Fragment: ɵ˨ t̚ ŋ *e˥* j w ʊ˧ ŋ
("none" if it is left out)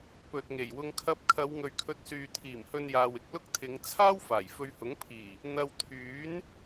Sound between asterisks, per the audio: e˨˩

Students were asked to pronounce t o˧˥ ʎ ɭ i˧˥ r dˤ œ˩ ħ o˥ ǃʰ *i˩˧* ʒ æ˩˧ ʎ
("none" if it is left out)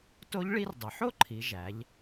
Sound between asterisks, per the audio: i˩˧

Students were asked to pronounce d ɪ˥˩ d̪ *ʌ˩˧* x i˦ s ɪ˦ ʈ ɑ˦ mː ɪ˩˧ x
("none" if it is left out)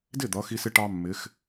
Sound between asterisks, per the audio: ʌ˩˧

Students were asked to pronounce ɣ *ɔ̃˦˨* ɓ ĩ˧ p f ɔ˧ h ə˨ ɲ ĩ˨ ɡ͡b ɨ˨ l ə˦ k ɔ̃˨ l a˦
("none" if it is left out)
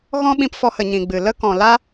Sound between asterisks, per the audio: ɔ̃˦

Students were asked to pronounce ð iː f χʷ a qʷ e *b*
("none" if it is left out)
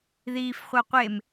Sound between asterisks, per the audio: m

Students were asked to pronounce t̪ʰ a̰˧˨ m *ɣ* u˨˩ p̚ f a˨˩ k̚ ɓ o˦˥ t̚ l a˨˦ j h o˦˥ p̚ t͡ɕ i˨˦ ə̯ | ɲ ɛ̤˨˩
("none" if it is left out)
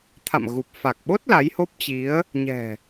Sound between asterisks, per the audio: ɣ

